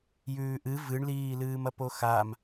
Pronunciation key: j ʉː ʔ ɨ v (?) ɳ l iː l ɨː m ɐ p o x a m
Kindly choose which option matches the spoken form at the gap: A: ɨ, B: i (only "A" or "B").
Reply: A